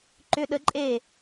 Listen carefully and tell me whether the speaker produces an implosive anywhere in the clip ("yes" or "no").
yes